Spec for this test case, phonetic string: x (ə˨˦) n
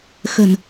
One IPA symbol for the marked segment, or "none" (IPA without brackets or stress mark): ə̤˨˩